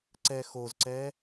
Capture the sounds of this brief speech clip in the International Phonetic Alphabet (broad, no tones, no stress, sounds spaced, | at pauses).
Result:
ǀ ɛ x o z ǀ ɛ